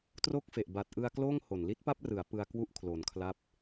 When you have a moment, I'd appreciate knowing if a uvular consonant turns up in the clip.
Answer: no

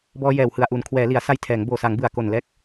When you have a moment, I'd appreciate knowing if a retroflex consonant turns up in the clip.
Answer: no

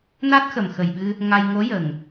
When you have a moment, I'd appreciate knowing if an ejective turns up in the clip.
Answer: no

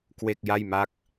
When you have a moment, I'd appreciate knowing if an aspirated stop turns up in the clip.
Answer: no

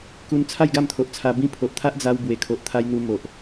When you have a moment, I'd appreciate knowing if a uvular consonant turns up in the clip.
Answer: no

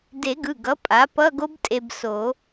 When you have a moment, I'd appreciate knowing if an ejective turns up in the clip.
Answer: yes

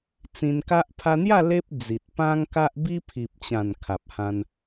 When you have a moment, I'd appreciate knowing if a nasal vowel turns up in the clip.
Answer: yes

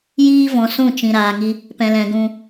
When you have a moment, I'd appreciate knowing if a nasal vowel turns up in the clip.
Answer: yes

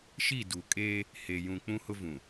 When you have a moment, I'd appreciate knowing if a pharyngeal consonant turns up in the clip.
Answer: no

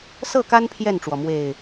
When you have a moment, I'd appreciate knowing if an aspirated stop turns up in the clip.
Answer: yes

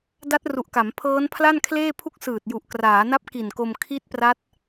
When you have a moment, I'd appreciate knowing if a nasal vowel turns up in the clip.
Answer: no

